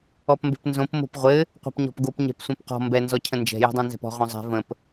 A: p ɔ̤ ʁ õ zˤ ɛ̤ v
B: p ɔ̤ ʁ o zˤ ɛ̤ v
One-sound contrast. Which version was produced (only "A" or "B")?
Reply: A